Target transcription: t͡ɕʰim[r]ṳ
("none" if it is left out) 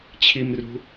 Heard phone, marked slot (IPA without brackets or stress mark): r